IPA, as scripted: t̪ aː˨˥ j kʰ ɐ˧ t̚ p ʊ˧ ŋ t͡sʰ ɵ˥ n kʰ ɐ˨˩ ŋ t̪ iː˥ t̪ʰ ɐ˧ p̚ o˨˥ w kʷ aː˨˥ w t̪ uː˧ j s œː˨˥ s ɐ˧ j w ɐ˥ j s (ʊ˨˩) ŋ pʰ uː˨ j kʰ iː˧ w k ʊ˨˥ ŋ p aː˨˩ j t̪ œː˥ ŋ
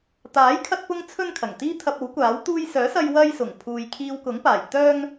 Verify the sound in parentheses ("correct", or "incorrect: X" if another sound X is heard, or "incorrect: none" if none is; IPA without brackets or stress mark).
correct